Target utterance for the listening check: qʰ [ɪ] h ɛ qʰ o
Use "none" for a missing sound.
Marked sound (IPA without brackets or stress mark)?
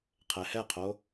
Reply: ɛ